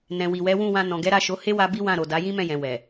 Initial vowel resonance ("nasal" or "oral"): nasal